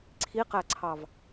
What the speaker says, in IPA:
ǀʰ i q æ ǀʰ ɑ v

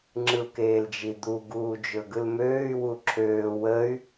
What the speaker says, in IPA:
ŋ͡ǁ ɯ u̯ k eː l d͡ʒ i d̪ u ɡ uː d͡ʒ ɵ ɡ ɯ l m øː y̯ w u ǁʰ øː w ə y̯

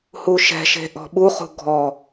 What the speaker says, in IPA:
h u ʃ ɛ̤ ʃ e̤ ʔ ɔ̤ ɓ u χ ṳ ɡʱ ɔ

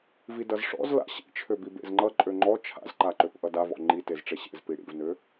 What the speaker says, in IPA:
v i d ʌ z ʂ ɔ̰ z l a̰ ɕ ḭ t͡ʃʰ ø b i b ḛ z ŋ͡ǃ ʌ ǃʼ ø ŋ͡ǃ ɔ t͡ʃʰ a̰ z ǃ a ǃ ø p ʔ ʌ d a v ɔ̰ ŋ͡ǃ i t e z ʈ͡ʂ e ɕ ḛ z p i ɽ ḭ v n ø

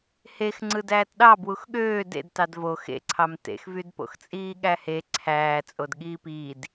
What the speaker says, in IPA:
h e x ŋ͡ǀ ɯ d æː t ɗ ɑ b w u x ɠ øː d ḛ d t ɑ d v o x ḛ ǀʰ ɑ m t ḛ x v y d p o̰ x t͡sʼ iː ɠ æ h e ǀʰ æː t͡sʼ o d ɠ iː p iː d

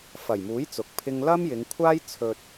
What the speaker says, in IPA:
f ɐ˨˩ j m uː˨˥ j t͡s ʊ˨˥ k̚ pʰ ɪ˥ ŋ l ɐ˥ m j ɪ˨˧ ŋ kʷʰ aː˥ j t͡sʰ ɵ˧ t̚

